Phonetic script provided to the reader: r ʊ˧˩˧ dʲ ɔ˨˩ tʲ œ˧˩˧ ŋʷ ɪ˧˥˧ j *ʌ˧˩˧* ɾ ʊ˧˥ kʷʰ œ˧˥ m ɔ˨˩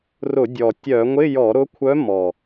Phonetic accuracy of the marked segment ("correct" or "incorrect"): incorrect